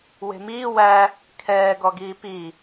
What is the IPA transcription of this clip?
w e̤ m iː w æ | kʰ ɛː ɡ ɔ ɡ iː p i

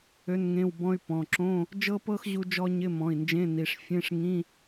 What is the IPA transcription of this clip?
ø˧˥˧ n ŋ ẽ˧˥˧ w b ɔ̃˧˥˧ y̯ p ɔ̃˩˧˩ ǁ õ˧˥˧ | d͡ʒ ɤ˥ p ɤ˥ x ʑ u˥ d͡ʒ ɔ˥ ɲ ɪ˧˥˧ m ɔ̃˩˧˩ i̯ n d͡ʒ ẽ˧˥˧ n i˩˧˩ ʂ fʲ ẽ˧˥˧ ʂ ŋ ĩ˧˥˧

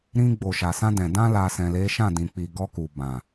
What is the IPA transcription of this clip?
ɾ ĩ˧ ɡ͡b o˨ ʃ a˨ s ã˧ d ɛ̃˨ d ã˧ l a˨ s ɛ̃˨ l e˨˦ ʃ ã˦˨ d ĩ˨ k͡p i˨ ɡ ɔ˧ k u˨ b ã˨

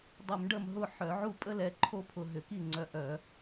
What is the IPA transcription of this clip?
dˤ ʊ˧˩˧ m ɖ ə˥˩ m ɦ ʊ˥˩ ħ œ˧˩˧ ʕ u˥˩ pʼ ə˥ l ɛ˨˦ ǃʰ o˥˩ pʰ ʊ˧˩˧ ɦ ʏ˨˩ k i˥˩ ŋ͡ǀ œ˨˦ ʔ œ˧˩˧

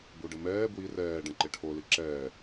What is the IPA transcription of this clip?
b u ɖ ɘ m ɛː b w i r ɛː ɖ ɛ̃ ǃ e ʈʰ o l i ǁ ɛː

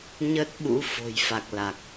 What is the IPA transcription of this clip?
ɲ ə˦˥ t̚ ɓ ṵ˧˥ f o̤˨˩ j f a˨˩ k̚ l a˨˩ k̚

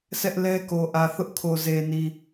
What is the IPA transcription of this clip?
sʰ ɛ˦ ʔ l ɛ˦ k o˨ ʔ ä˨ θ ʊ˦ ʔ kʰ o˨ z e˨ n i˨

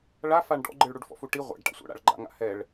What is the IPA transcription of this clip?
ɭ a f a ɳ ɖ ɔ̰ ɡ͡ǃ ɯ ɭ ɽ u ɖ f ɔ̰ f u ʈ i ʁʷ a̰ ɖ ʈ a̰ sʷ a̰ ɽ a̰ ɭ ɡ͡ǃ a̰ ŋ a̰ h ɛ ɭ

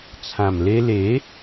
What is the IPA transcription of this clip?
t͡sʰ ã˨˩ m l e˧ l e˨˦

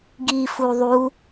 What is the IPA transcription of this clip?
ɡ i f u ðˤ u

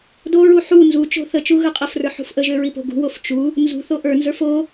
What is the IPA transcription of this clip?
d o ɹ u ħ u n z u t͡ʃ o̤ θ ə t͡ʃ u ɣ ɐ qʼ ɐ f r ə˞ ħ ṳ f ʔ ə ʒ ø ɹ i p o̤ ɡ ṳ w o f t͡ʃ u | n z ṳ θ o ʔ ə˞ n z ə˞ f o

